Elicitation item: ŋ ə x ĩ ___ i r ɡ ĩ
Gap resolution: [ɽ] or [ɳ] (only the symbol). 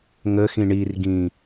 ɳ